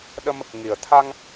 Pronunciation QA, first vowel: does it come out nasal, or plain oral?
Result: oral